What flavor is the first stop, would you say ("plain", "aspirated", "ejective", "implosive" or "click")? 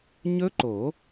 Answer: click